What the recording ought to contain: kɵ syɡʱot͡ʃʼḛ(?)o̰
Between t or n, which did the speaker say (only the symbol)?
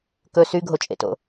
t